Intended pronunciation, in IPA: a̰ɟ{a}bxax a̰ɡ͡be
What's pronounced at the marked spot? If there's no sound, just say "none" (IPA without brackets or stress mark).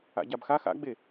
a